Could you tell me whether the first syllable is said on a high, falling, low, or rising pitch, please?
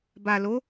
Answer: low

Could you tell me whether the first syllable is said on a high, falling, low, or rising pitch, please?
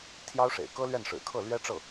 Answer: high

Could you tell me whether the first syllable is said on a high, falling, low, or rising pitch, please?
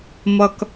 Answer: high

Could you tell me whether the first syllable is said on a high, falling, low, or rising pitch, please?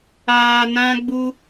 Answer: low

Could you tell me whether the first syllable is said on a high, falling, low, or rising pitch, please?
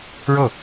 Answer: falling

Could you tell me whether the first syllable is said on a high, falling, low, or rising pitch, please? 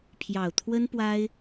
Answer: low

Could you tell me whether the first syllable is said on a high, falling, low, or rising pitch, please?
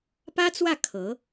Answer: high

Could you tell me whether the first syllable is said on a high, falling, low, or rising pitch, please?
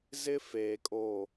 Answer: high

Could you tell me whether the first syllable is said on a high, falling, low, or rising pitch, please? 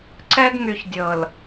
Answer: high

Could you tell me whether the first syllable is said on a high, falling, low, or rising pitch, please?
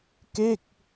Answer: falling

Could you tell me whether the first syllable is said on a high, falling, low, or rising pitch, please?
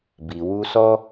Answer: low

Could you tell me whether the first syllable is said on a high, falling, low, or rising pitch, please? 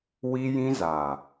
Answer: high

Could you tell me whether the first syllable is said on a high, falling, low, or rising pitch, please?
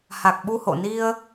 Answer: low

